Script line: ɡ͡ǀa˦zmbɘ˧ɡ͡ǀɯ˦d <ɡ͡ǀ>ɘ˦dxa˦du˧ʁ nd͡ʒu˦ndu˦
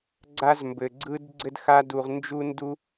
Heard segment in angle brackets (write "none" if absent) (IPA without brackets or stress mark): ɡ͡ǀ